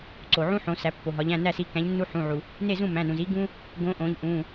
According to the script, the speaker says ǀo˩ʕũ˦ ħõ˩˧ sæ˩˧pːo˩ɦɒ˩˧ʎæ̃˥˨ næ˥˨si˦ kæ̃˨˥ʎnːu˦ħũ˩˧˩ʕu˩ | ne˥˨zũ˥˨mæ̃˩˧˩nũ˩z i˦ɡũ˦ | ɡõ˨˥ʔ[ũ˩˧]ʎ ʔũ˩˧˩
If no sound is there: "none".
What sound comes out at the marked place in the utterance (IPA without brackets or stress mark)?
õ˩˧